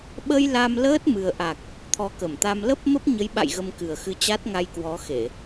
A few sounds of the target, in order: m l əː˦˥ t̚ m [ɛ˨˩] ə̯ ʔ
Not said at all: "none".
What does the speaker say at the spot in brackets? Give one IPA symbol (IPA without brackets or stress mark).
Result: ɨ˨˩